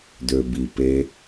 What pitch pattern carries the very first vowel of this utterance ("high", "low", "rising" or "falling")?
low